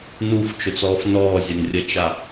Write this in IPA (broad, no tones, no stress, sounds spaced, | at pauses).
n u f t͡ʃ ʊ t͡s ɔː f n ɔː zʲ ɐ n rʲ ɐ t͡ʃ a